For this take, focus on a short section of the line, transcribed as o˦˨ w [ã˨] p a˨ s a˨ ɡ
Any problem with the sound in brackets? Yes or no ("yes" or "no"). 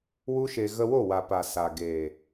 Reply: yes